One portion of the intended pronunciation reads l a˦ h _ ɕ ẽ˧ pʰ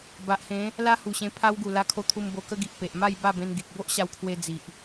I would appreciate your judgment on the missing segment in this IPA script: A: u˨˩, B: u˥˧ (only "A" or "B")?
A